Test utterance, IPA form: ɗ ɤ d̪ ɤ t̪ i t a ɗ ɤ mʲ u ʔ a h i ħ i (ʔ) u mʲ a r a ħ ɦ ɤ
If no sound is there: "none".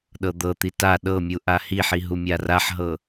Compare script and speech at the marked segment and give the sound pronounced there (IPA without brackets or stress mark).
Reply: ɦ